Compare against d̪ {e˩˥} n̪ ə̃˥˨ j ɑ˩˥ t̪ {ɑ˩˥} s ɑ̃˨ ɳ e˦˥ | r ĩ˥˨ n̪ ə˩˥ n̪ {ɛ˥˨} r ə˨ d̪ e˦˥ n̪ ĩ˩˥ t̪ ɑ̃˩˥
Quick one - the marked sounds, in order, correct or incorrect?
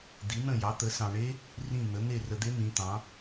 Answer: incorrect: i˩˥, incorrect: ə˩˥, incorrect: e˥˨

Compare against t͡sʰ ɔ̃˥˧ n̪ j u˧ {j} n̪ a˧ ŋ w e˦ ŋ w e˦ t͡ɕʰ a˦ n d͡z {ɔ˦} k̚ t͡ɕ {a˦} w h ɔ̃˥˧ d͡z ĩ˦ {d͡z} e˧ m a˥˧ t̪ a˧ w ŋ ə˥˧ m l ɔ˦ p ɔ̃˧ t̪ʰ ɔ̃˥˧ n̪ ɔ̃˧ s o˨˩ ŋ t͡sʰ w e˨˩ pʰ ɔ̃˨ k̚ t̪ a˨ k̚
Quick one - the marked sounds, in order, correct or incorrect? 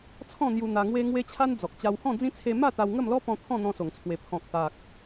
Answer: incorrect: none, incorrect: ɔ˨, incorrect: a˧, incorrect: t͡sʰ

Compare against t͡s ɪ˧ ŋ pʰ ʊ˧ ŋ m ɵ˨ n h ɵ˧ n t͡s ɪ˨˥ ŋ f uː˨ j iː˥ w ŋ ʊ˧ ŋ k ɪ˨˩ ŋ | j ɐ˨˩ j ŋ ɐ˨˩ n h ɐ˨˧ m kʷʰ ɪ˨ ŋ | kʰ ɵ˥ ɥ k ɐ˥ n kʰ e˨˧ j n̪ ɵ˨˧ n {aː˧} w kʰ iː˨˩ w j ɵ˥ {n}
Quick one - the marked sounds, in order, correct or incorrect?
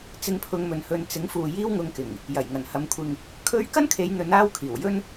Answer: incorrect: aː˥, correct

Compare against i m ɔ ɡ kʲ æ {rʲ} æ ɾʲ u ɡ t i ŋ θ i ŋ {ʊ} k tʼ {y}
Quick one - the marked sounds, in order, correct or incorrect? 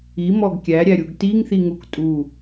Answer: incorrect: ɾʲ, incorrect: u, incorrect: u

